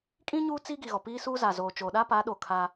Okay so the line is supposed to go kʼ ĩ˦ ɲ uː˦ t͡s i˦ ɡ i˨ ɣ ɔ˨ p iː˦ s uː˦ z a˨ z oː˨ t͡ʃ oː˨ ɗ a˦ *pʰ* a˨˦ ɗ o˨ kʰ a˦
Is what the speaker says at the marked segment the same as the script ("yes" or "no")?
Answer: no